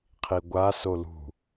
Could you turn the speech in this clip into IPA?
qʰiɡʷa solṳ

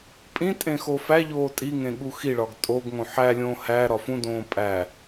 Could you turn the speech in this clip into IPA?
pʼĩtʼẽ xofæʎoː tʼiŋẽ ɠuxiɭɒɡ tʼoɡŋõ ħælʲõː hæ ɾɒfũdõː pʼæ

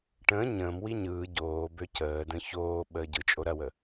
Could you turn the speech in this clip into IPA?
ʈə̃ː ɲə̃ːmwi ɲɯː ɟoː bøcəːdə̃ çoː ɓəːɟɯt͡ʃʼo ɾɐwə

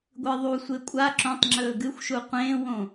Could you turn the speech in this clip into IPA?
ɡʷɨðˤusʷe kʷʼa ǁõtˤŋ͡ǁɵː ɡɨxʷʃu qʷẽːwõ

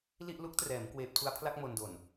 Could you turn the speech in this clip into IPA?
li˥˩ʔ lu˦˥k̚trɛː˩˦m kweː˨˩p̚tʰu˧a̯pʰla˥˩k̚ mo˧ndo˨˩n

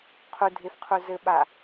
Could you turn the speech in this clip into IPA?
qʰudʱefqʰu zɘɓa

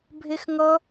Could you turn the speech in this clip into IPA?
bʱexŋʌ

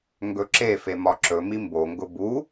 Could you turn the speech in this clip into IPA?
ŋɡɵǁefe mɒǁɵmi mboŋɡʊ bu

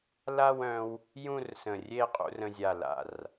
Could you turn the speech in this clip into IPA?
la˥˧wœ̃˧w | jũ˥˧rsə̃˧˩rʲe˥˧ qʼṵ˧rə̃˧zʲa˧˩ la̰˧˩r

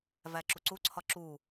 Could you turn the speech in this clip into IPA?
væǁuǀuǀʰɒ ǁu

